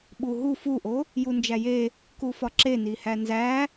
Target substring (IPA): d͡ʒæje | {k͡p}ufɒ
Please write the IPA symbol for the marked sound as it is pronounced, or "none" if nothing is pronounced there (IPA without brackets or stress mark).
k